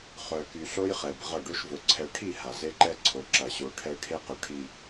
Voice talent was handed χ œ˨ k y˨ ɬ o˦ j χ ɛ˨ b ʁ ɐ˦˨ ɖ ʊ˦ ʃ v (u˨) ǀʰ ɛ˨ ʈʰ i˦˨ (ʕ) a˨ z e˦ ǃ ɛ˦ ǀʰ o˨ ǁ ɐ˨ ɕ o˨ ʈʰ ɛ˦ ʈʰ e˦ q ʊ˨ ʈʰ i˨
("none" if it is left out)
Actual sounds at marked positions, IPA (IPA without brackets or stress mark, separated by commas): ʊ˨, h